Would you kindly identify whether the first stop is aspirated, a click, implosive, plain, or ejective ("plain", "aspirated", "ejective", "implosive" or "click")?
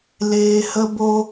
plain